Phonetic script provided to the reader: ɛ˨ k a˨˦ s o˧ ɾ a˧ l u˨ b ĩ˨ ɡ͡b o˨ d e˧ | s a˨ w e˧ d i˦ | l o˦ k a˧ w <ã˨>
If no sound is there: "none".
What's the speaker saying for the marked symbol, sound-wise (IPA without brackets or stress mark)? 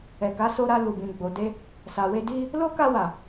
a˨